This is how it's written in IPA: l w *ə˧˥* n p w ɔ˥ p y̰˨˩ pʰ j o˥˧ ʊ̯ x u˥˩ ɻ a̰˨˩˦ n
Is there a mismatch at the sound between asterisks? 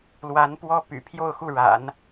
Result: yes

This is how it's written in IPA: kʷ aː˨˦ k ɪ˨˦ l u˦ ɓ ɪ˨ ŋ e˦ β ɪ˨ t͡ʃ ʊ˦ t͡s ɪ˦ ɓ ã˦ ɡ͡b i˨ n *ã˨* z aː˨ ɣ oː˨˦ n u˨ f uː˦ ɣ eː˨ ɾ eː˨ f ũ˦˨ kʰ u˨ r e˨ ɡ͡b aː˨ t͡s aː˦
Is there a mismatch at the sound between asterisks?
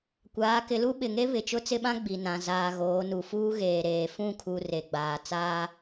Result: no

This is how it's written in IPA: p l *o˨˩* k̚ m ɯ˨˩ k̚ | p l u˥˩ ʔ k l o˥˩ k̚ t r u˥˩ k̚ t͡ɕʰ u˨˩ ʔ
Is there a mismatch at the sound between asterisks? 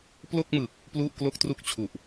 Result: yes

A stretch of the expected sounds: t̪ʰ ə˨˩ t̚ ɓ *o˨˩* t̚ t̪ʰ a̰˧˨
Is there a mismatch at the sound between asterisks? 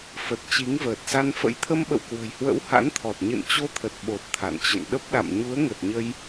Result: no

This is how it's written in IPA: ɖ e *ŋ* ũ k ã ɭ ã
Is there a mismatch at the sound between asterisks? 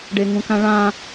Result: no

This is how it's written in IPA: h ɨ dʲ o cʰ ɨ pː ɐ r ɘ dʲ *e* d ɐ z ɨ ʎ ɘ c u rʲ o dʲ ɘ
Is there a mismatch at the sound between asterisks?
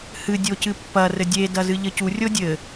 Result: no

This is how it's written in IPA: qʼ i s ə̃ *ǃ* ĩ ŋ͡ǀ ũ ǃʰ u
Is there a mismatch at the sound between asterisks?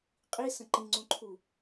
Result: no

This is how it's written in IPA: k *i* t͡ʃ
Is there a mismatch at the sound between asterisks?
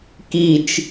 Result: no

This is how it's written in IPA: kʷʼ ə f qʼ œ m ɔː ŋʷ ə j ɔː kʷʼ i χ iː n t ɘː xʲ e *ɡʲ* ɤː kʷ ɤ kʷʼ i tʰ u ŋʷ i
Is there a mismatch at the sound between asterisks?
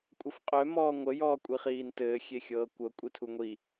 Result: yes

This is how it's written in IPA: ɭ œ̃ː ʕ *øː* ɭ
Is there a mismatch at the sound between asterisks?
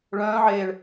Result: yes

